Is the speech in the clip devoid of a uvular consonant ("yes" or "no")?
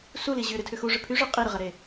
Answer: no